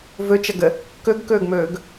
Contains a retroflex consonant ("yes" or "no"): no